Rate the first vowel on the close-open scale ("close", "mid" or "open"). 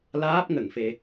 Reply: open